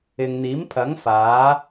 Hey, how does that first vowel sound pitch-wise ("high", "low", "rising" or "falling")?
low